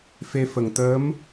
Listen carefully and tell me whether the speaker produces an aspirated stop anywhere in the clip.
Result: no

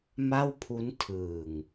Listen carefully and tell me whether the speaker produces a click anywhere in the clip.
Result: no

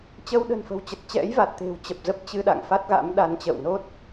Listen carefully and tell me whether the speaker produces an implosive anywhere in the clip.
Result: yes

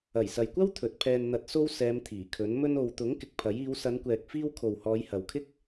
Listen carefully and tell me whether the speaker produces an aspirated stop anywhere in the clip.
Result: yes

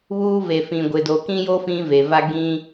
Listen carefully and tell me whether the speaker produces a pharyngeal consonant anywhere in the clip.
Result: no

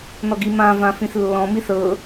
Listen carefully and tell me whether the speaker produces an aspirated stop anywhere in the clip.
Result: no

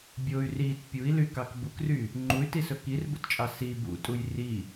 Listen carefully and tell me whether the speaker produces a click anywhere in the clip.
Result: yes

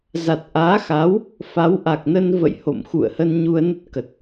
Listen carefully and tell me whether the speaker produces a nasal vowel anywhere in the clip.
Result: no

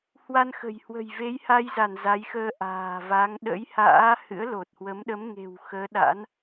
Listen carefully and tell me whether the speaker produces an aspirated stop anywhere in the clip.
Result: no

